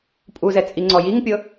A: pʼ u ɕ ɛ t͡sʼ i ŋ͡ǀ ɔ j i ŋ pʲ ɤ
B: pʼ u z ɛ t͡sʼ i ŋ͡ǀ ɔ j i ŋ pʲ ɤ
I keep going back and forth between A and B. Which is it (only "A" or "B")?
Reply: B